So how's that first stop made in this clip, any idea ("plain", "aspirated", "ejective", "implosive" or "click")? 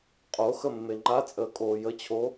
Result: ejective